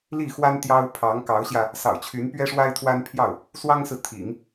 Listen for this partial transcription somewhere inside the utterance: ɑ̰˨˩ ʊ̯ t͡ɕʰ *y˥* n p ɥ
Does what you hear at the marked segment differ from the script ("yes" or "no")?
yes